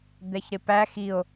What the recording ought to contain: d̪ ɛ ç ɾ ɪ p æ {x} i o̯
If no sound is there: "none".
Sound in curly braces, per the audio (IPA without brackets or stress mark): x